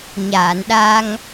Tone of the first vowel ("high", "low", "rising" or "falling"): low